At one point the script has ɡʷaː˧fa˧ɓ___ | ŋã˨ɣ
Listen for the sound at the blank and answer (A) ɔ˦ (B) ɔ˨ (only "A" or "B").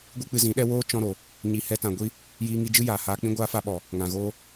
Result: B